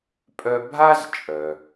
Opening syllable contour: high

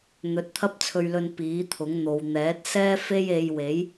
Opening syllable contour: low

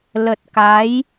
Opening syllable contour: low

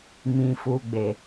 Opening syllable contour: low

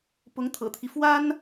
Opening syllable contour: rising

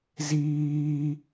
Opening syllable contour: low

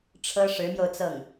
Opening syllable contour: high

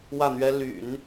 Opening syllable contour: falling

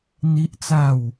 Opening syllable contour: high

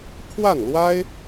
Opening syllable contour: falling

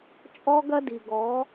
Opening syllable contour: high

